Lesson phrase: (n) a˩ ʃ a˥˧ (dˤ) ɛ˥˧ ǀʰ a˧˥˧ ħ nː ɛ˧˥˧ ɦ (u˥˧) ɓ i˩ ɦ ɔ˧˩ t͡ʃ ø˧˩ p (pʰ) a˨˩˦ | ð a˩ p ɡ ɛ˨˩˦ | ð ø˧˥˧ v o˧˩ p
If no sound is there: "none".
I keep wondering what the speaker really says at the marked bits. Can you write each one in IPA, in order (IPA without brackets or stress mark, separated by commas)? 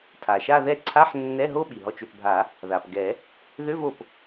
tʰ, ð, o˥˧, bʱ